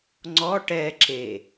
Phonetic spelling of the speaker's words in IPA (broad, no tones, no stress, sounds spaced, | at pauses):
ŋ͡ǀ ɔ ʈ ɛ ǁ e